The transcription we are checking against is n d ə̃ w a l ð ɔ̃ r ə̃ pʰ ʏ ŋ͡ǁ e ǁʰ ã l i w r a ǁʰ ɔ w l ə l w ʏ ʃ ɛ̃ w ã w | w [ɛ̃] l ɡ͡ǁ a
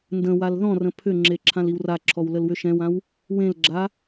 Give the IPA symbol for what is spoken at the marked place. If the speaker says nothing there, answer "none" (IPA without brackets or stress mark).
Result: ẽ